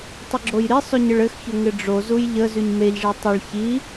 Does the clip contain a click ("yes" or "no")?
yes